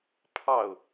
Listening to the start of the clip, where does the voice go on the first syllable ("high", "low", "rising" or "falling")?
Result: falling